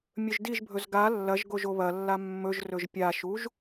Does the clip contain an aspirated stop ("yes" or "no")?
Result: no